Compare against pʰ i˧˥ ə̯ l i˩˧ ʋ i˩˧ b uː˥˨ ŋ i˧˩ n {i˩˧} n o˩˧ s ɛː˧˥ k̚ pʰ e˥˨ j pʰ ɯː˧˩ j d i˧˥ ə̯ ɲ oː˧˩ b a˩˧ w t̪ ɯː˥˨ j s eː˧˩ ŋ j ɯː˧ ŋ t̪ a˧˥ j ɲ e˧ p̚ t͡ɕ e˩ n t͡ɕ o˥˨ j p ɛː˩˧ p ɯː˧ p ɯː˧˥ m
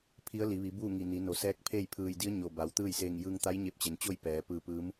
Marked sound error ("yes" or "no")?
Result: no